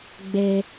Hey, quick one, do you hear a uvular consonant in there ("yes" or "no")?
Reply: no